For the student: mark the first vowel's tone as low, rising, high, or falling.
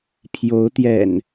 rising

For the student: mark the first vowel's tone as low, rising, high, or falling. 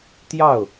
falling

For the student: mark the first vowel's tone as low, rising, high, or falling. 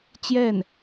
falling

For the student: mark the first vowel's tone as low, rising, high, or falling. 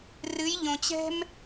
rising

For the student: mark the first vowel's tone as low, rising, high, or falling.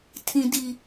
high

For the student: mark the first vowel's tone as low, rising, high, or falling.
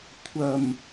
low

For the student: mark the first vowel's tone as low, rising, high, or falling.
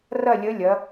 falling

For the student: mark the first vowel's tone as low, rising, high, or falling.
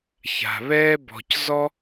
low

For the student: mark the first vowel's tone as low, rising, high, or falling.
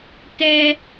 high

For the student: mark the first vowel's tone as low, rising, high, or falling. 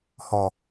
low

